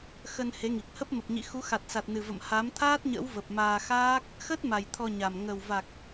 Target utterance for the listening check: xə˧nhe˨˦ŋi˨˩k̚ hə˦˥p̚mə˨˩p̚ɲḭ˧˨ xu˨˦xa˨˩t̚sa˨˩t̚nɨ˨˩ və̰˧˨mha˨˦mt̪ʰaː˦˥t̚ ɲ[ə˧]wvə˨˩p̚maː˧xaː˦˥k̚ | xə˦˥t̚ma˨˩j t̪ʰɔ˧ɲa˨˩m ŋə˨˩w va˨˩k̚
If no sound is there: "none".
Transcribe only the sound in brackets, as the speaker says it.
ə̰˧˥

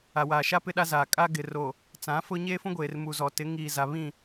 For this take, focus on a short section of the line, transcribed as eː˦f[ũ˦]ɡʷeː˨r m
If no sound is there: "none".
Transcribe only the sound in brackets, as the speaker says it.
ũ˦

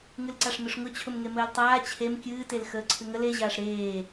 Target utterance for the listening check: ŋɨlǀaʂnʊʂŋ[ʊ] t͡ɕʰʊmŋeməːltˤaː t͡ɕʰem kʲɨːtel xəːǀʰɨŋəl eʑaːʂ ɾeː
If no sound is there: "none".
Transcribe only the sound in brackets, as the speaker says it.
ʊ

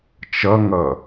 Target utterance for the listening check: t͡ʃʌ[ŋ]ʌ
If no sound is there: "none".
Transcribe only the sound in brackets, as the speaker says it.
ŋ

